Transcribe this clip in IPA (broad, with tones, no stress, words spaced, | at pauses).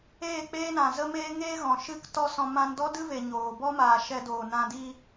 eː˦˨k͡peː˦nã˨ zə˦meː˦ŋeː˦ ɣɔ̃˨ʃɨ˦ktɔ˦sɔ̃˧ mã˧ndɔ˦dɨ˦ve˨ ɲoː˨ bɔ˦maː˨ ʃɛ˧doː˨nã˧ di˧